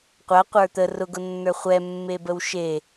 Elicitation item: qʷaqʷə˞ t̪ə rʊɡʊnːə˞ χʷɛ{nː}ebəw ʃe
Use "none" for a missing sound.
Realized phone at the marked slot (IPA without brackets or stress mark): mː